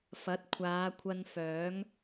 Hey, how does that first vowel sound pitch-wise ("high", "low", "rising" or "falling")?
rising